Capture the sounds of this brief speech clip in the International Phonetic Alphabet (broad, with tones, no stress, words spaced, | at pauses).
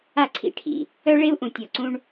a˦˨ǀʰḭ˦ʈʰḭ˨ | œ˦ɭe˦u̯ʔũ˨ tʲɔ˨ǀũ˦ɳ